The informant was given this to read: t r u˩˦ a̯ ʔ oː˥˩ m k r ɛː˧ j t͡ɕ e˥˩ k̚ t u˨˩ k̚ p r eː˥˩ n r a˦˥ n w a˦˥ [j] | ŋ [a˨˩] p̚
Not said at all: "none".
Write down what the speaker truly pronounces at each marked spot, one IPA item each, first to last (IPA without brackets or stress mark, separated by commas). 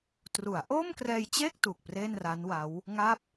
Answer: w, a˦˥